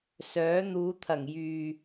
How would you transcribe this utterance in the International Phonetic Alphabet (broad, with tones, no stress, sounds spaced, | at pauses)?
s œː˨˥ n̪ uː˨˧ t̪ʰ ɐ˨˩ ŋ j yː˨